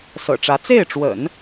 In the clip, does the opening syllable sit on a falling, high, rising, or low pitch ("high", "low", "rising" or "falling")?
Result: low